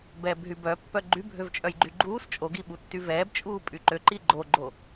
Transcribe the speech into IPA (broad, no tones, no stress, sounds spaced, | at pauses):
b ɛː b ɦ y b œ pː œ ɡ͡ǃ y bʱ ø v t͡ʃʼ œ j ɡ͡ǃ y ɡ͡ǃ uː s t͡ʃʼ o ɡ i ɓ u tː y v ɛː b t͡ʃʼ uː pʼ y ǃ ø ǃ i ɡ͡ǃ o ɡ͡ǃ o